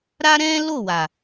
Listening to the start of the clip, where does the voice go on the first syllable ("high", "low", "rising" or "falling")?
high